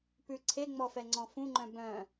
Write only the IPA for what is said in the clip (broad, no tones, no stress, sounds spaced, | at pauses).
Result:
p ʉ ǀʰ e ŋ͡m ɔ f ɛ ŋ͡ǀ ɔ̃ f ũ ŋ͡ǃ œ̃ b œ̃